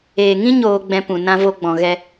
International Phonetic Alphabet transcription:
eː˨ ŋ ĩ˦ ɲ oː˧ ɡ͡b ɛ̃˧ p ũ˨ n ã˦ v o˦ ɡ͡b ɔ̃˧ ɣ ɛ˧

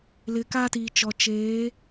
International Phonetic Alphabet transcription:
l ɪ˨ k a˦ t iː˨ t͡ʃ ɔ˨ t͡ʃ eː˨˦

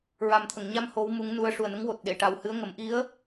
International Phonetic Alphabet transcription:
ɹ a˨˩ m t̪ʰ ə˨˩˨ ŋ ɲ a˧ m h o˧˥ w m u˧˥ ŋ n u˧˥ ə̯ ʂ u˨˩ ə̯ n ə˧˥ ŋ w o˨˩ t̚ ɗ e˨˩˨ ʈ a˨˩ w h ɨ˧˥ ə̯ ŋ ə˨˩˦ m ʔ i˧˥ ə̯

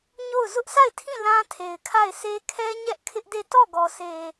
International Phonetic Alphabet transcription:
ɲ o˦˨ ʊ̯ z ʊ˦ ʔ s a˦˨ ɪ̯ tʰ ĩ˦˨ l ã˦ tʰ e˨ ɪ̯ kʰ a˦˨ ɪ̯ s e˦ kʰ ɛ˦ ɲ ɛ˦ ʔ kʰ ɪ˦ ʔ d e˦˨ t ɔ˦˨ ɡ ɔ˨ sʰ e˨

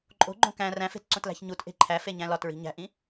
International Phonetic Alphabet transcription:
ǃʼ o̤ ɡ͡ǃ õ k æ̃ r æ̃ f e̤ t ǀ õ t l æ̤ ç ɲ u t ʔ e̤ ǃʰ æ f e ɲ æ̃ l ɒ t ɹ i̤ ɲ æ̤ ʔ ĩ

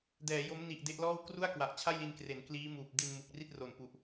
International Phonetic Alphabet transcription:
d ɛː˩˦ j o˦˥ m n i˨˩ ʔ d e˦˥ ʔ l ɔː˥˩ w k r u˥˩ a̯ k w a˨˩ ʔ t͡ɕʰ a˥˩ j l i˧ n k r e˩˦ n k l iː˦˥ m uː˨˩ p̚ d i˧ n m u˨˩ k̚ r i˥˩ t̚ r o˨˩ n p u˨˩ ʔ

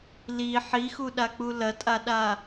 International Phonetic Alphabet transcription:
l i ħ i x u ɗ a k͡p u l ɐ tʼ a ɗ a

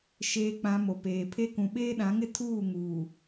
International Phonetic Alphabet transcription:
ʃ eː˨ k͡p ã˨ m o˨ p eː˨ pʰ e˦ k ũ˨ ɓ eː˦ ɗ ã˨˦ ŋ ɪ˦ tʰ uː˦˨ ŋ uː˨

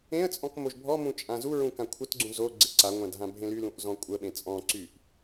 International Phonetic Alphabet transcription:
ẽ ə̯ t͡sʼ ɔ̃ k m o ʒ bʱ ɔ m ũ t͡ʃʼ ã z u ɹ ũ k ã kʷʰ ə t ɡ͡ǀ ũ z o ɡ͡ǀ e ǀ a ŋʷ ã d ɦ ã bʱ ẽ l y l ũ ʔ z ɔ̃ kʷʼ ə ɓ ẽ t͡sʼ ɔ̃ ǀ y ʔ

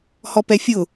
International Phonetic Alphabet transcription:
h ɔ p ɛ fʲ ʊ

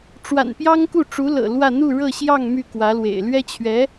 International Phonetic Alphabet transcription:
ʈ͡ʂ w a̰˨˩ n p j ɑ˥ ŋ k u˥˩ ʈ͡ʂ u˧˥ l ɤ̰˨˩ l w ä˥˧ n̪ u˥˧ ɻ ɤ˥˧ ɕ j ɑ˥˧ ŋ m y˥˩ k w ä˧˥ l w ḛ˨˩ ɪ̯ l ɥ ɛ˥ t͡ɕʰ ɥ ɛ˧˥

